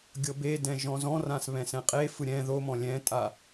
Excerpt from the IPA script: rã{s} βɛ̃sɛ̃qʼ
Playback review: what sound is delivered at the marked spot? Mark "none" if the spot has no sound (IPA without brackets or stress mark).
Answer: s